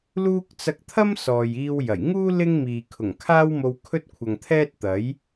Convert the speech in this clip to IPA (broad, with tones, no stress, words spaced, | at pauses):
luː˥k̚ t͡sɐ˧k̚t̪ʰɐ˥m sɔː˨jiː˧w jɐ˨˩j ŋuː˥ lɪ˥ŋmiː˨ kʰʊ˨˩ŋkʰaː˥w mo˧wkʰɵ˥t̚kʷʰɐ˨ŋt̪ʰɛː˥t̚ t̪ɐ˨˥j